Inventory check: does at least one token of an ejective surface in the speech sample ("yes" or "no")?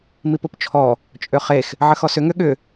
yes